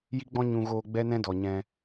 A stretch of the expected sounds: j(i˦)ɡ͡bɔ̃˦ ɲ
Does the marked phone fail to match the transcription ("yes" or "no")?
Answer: no